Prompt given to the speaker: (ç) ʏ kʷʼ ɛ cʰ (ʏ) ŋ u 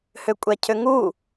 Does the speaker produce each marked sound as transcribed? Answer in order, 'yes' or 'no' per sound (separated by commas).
no, yes